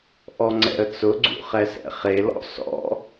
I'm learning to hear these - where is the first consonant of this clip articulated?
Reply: throat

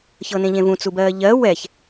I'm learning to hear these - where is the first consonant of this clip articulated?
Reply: palate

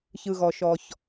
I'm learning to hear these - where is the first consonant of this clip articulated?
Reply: palate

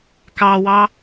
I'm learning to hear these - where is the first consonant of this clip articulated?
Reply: velum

